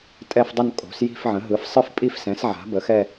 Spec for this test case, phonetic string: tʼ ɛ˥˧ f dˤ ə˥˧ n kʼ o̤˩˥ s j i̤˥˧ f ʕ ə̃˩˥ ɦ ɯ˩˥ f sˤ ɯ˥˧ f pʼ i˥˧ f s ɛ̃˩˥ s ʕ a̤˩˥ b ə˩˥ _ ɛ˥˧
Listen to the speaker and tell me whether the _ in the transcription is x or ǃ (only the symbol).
x